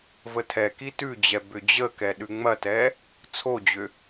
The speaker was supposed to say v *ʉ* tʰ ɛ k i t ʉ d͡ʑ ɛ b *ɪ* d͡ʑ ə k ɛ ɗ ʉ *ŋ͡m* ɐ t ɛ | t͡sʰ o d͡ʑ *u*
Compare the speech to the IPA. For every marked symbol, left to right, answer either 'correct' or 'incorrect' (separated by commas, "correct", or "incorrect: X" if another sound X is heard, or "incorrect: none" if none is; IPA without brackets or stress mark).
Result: incorrect: ə, incorrect: ʏ, correct, incorrect: ʏ